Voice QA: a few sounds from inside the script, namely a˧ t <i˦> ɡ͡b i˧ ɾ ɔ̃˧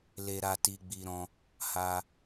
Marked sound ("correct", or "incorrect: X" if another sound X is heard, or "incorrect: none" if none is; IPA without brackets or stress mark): incorrect: i˧